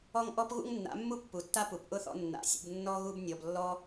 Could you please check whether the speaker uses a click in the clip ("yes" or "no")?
no